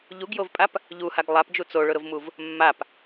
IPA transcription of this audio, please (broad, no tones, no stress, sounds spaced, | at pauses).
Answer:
ʎ u ɡ j o v pʼ a p | ʎ u h a ɡ lˠ a p d͡ʒ u t͡s o ɭ ʊ ɾ ʊ v m u v | mː a p